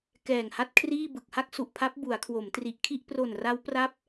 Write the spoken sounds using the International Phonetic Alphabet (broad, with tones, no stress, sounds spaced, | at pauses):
k ɛː˨˩ ŋ h a˦˥ t̚ kʰ r iː˥˩ b ɯ˨˩ k̚ h a˥˩ k̚ s u˨˩ ʔ pʰ a˦˥ p̚ b u˩˦ a̯ kʰ w o˩˦ m t r i˨˩ ʔ kʰ i˥˩ ʔ p r o˨˩ n r a˦˥ w p r a˦˥ p̚